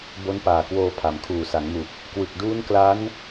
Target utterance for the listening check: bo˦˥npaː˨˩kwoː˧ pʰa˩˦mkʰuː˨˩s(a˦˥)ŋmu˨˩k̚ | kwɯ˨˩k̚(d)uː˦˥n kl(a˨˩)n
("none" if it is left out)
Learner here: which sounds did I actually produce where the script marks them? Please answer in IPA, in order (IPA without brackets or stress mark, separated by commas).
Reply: a˩˦, d, a˦˥